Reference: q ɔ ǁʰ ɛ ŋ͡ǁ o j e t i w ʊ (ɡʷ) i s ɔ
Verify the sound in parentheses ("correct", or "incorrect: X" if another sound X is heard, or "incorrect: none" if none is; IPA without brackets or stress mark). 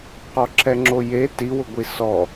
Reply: correct